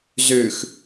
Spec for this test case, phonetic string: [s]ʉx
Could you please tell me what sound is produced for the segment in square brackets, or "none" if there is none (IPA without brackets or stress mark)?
z